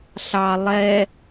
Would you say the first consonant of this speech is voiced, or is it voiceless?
voiceless